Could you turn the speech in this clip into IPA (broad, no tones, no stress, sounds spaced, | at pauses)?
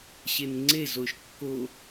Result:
ɕ e n ŋ͡ǀ e z o ʃ kː o